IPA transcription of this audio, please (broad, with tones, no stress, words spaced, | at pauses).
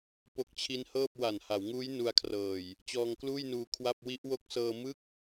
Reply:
po˦˥k̚t͡ɕʰi˦˥nhɤː˥˩p̚ wa˨˩nha˩˦wŋuː˦˥j nu˦˥a̯kʰrɤː˨˩j | t͡ɕɔː˧ŋkluː˥˩jnuː˧ kʰwa˥˩p̚ wi˦˥ʔwo˦˥k̚sɤː˧ mɯ˥˩k̚